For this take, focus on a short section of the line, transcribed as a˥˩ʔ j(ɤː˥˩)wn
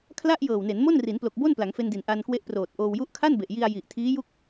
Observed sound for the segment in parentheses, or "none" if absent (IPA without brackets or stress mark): ɤː˨˩